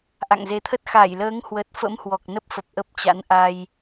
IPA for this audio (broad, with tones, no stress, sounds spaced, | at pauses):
ʔ a̰˧˨ ŋ z e˨˦ t̪ʰ ə˦˥ t̚ x a˧˩ j l əː˨˦ ŋ h w ə˨˩ t̚ f ə̰˧˥ m h w ɔ˨˩ k̚ n ə˦˥ p̚ f ə˨˩ p̚ ʔ ə˦˥ p̚ t͡ɕ a̰˧˥ n ʔ a˧ j